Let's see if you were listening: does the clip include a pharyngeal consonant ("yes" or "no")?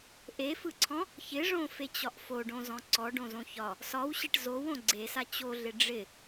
no